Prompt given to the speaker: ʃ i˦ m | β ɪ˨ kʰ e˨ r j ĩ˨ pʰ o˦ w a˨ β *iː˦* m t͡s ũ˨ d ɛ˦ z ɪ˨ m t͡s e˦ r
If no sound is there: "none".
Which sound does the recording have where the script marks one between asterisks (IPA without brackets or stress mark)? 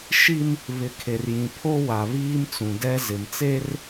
iː˦